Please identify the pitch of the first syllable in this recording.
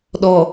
low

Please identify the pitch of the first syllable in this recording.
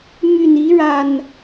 low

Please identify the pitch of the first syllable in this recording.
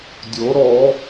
rising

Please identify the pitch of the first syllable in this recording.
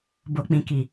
low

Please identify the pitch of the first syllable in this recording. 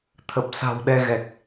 low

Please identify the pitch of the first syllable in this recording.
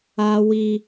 high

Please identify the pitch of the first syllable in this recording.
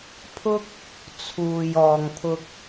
high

